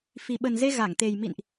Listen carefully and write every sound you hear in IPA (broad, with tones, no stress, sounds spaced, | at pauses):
f i˨˩ ɓ ə˨˩ n z e˧ ɣ a˧˩ ŋ t̪ e˨˩ j m ḭ˧˨ n ʔ